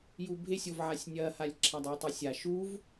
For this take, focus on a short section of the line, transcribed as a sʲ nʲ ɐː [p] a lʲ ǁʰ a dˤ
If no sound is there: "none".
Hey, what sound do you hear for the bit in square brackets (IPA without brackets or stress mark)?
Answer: h